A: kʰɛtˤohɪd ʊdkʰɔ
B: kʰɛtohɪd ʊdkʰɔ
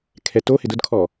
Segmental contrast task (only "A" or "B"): B